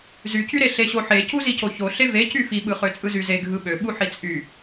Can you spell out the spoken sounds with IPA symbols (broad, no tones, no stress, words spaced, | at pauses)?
zycyɾe ɬeɕoħe cuzicoço ɬeve cyfiɓɯχø t͡sʼɯzyzeɡʱɯ ɓøɓu ħit͡sʼy